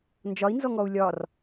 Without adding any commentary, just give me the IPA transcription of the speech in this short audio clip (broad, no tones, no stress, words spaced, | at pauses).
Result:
nd͡ʒɒi̯nzɔŋɔu̯ lʲɒr